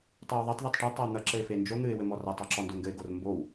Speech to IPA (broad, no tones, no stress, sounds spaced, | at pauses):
tˤ e w ðˤ e tˤ ð e tˤ ʈ e tˤ a w n̪ ɐ ǁ ɘ ɪ̯ f e n d͡ʒ o n̪ ɨ ɪ̯ w ɘ m ɔ r a tˤ ɔ ǁ ɔ n d o ŋ ɡ ɘ ɪ̯ ɡ o r m b o w